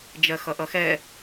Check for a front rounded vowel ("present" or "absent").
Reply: absent